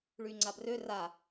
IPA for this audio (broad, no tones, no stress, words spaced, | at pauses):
ɭyŋ͡ǀabrø ra